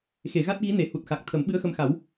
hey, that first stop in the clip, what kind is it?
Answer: plain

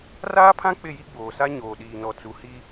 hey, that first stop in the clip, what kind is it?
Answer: aspirated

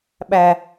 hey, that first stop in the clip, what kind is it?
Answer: implosive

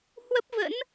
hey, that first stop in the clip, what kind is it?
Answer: plain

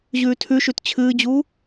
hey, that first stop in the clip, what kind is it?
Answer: aspirated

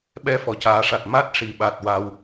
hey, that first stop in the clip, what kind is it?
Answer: implosive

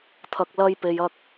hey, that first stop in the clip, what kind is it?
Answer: aspirated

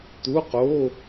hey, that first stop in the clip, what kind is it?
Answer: plain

